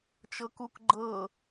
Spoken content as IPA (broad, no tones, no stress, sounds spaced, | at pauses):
t͡ʃ ɤ k u k ɡ͡ǃ ɤ